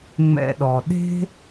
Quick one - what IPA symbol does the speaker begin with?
ŋ͡m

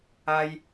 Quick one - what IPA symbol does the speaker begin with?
a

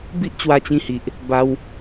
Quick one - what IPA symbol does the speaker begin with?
b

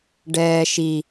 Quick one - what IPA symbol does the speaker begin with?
ɖ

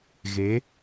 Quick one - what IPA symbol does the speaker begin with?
ɣ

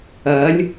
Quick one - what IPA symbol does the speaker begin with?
ɐ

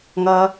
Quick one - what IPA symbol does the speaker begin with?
ŋ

